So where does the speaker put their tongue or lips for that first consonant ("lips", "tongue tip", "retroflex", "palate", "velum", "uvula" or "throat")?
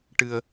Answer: retroflex